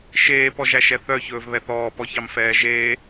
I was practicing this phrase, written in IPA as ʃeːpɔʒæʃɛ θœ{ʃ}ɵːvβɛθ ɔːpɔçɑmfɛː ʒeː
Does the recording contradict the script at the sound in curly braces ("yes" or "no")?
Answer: yes